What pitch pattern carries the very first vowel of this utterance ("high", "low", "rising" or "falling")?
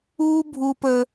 high